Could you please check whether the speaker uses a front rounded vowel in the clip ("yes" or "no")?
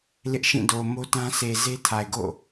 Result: no